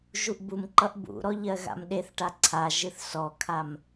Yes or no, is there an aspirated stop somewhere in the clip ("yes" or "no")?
yes